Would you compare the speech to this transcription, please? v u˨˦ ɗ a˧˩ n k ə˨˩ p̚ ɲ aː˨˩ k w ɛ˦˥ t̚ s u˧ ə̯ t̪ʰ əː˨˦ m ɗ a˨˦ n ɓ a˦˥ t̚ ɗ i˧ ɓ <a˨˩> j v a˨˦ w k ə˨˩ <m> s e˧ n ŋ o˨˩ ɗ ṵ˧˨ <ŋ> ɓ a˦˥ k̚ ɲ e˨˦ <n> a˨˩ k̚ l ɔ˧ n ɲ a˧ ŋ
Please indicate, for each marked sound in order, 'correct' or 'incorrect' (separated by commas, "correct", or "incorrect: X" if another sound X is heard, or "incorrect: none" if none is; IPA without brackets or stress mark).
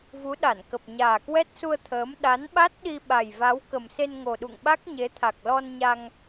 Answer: correct, correct, correct, incorrect: t̪ʰ